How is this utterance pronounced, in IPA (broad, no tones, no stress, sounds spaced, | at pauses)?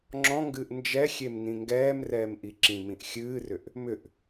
ŋ͡ǁ ɔ̃ ŋ ɡ ɨː ʔ n d͡ʒ ɛ xʲ e m n ĩ ŋ ɡ ɛː m r ɛː m ʔ i ǁ ĩ m ĩ ʔ xʲ ɨː r ʏ ʔ | m ʏ ʔ